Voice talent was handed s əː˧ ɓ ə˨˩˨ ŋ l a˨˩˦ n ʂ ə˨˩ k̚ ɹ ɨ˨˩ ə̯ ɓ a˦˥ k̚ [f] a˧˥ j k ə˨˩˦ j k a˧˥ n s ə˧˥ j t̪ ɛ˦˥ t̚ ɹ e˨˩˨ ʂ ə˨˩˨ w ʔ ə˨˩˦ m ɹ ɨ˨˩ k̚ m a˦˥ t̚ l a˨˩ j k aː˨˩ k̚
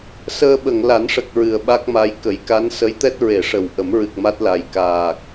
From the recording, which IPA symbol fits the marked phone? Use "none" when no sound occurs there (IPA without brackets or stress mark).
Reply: m